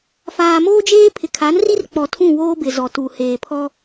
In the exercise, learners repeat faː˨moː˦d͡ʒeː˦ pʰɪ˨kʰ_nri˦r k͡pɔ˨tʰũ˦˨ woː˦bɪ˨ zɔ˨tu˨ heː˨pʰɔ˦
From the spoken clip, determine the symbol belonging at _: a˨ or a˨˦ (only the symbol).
a˨˦